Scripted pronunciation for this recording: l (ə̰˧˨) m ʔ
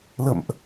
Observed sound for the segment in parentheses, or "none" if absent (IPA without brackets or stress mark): ə̰˧˨